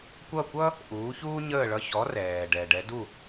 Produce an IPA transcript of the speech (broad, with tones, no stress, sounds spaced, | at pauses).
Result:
kʷ ʌ˥˩ kʷ ʌ˥ | ʔ uː˩˥ ç uː˥ ɲ əː˥˩ ɭ ʌ˧ ç ɔ˩˥ r ɛː˩ ɖ ɛ˩ ɖ ɛ˩˥ d u˥˩